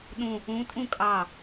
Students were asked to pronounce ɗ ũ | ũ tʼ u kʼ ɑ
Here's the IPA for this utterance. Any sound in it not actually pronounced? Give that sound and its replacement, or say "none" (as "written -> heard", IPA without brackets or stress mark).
u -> ũ